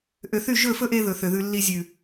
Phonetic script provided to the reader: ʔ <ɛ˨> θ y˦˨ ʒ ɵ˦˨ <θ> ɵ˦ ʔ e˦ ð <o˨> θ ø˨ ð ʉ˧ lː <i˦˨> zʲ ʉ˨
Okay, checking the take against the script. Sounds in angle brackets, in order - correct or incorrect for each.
incorrect: ø˨, incorrect: f, incorrect: ɵ˨, incorrect: i˧

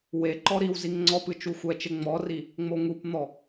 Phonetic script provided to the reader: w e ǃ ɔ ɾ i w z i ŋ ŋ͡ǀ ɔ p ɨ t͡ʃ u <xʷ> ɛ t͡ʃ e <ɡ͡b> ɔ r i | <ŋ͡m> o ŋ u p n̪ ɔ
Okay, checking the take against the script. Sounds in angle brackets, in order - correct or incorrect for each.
correct, incorrect: ŋ͡m, correct

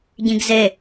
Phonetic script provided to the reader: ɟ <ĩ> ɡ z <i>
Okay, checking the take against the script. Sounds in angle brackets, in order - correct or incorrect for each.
correct, incorrect: e

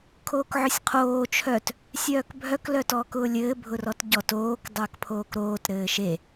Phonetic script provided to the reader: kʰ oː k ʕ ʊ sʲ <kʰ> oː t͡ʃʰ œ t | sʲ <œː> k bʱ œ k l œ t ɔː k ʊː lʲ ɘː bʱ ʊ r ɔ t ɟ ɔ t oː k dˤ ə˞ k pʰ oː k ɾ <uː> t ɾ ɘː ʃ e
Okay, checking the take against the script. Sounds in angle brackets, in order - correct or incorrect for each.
incorrect: qʰ, correct, incorrect: oː

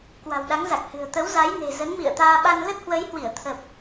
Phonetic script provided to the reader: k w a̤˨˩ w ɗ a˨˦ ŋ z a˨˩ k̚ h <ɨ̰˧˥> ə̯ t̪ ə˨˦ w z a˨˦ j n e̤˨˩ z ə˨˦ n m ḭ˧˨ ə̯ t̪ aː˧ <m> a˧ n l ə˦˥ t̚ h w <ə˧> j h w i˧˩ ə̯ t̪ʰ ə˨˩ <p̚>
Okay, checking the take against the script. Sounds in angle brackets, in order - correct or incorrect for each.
incorrect: ɨ̤˨˩, incorrect: ɓ, incorrect: ə˨˦, correct

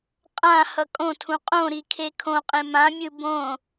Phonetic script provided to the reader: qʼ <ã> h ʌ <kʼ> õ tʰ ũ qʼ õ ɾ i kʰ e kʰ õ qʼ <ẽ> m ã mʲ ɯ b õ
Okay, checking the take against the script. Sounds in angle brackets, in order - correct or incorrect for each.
correct, correct, correct

